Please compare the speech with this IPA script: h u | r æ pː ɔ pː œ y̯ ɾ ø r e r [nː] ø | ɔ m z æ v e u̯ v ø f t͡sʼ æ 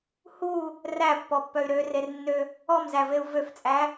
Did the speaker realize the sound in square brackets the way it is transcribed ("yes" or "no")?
yes